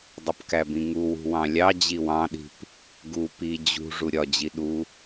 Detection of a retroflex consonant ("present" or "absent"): present